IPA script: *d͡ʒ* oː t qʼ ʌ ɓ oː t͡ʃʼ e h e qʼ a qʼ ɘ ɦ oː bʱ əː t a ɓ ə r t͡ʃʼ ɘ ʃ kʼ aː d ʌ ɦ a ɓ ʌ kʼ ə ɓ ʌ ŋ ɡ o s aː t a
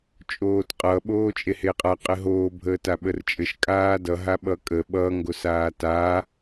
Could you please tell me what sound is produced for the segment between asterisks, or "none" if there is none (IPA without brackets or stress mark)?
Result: t͡ʃʼ